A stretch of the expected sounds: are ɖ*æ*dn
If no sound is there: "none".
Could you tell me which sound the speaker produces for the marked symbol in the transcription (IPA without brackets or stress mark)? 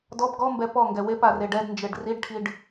ɛ